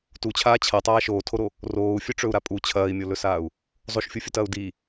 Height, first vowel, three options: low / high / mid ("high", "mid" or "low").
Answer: high